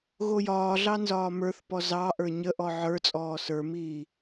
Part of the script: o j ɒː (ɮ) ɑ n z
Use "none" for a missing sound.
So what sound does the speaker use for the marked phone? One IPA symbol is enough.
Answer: ɮ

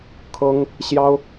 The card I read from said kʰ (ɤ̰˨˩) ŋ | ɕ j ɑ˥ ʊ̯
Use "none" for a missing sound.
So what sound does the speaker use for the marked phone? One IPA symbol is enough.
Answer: ɤ˥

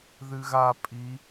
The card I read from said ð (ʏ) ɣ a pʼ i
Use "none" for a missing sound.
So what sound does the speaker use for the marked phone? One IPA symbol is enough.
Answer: ɨ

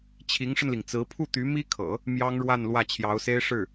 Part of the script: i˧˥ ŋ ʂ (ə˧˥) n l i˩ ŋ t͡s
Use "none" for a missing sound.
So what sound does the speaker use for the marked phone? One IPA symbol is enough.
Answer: ə˧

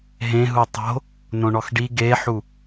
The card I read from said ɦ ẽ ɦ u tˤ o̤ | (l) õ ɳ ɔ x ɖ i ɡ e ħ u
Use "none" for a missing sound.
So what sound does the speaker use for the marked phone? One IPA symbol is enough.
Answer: n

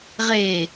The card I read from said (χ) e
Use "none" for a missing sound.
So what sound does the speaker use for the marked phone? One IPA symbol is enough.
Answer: ʁ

